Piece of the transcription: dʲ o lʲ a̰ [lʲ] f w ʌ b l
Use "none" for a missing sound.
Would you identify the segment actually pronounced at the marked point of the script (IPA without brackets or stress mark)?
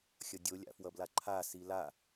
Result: none